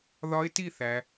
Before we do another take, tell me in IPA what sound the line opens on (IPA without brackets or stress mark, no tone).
ð